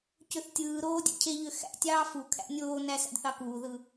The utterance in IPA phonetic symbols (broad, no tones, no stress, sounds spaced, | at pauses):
c ø θ tʲ ɯː ɾ oː dʲ æ̰ cʰ e ʎ ø x æ̰ tʲ ɑː f u kʰ æ̰ nʲ oː n æ s æ̰ d θ ɑ k uː ð ɯ